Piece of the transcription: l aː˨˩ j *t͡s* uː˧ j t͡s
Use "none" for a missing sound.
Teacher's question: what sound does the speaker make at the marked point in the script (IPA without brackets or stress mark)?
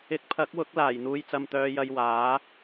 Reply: n̪